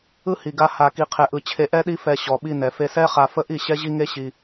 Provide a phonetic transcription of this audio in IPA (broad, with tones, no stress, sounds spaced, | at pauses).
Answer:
ɯ˦ h i˨ ɡ a˧ h a˧ k i˧ qʰ ɛ˧ ʔ ɯ˧ t͡ɕʰ e˧ ʔ ɛ˦ ɗ i˦ f ɛ˧ ɕ ɔ˨ ɓ i˧ n ɛ˨ f e˧ s ɛ˦ χ a˧ f ə˦ ʔ i˦˨ ɕ ɛ˦ ʑ i˦ ŋ e˦ ɕ i˧